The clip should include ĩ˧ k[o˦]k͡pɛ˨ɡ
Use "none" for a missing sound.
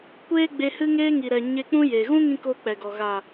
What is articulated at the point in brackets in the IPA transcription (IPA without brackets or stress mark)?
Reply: o˦